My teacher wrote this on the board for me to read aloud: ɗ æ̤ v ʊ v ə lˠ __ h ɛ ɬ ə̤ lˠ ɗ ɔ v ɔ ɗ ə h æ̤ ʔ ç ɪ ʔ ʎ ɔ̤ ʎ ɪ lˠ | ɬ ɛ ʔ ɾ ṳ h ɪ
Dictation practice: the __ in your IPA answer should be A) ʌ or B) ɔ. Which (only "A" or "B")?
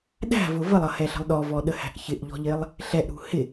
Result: A